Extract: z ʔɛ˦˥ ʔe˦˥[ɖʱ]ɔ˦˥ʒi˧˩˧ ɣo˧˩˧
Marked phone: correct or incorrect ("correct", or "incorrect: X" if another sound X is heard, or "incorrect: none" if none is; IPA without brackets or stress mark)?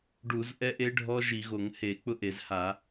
correct